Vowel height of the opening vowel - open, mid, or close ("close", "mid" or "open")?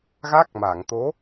open